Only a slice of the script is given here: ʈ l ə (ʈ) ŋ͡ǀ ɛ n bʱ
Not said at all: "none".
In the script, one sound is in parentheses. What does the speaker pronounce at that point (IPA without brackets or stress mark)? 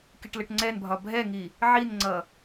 ʈ